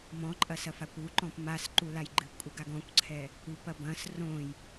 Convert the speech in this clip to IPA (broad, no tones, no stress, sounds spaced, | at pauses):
m ɔ̃ ǃʼ ɐ s ɐ f a kʷ u ǃ ɔ̃ p m a s ǃ u l a j ɡ͡ǃ ɨ p kʷʼ ɘ ɡ a ɡ ɔ̃ kʷ ǀʰ ɛ | u p ɐ b ɐ̃ s r õ j